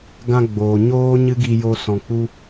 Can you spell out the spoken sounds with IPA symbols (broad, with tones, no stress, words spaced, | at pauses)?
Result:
ɡã˧ɡ͡boː˨ ɲoː˦ ɲɨ˦ɡi˧jo˧ sɔ̃˨k͡pu˧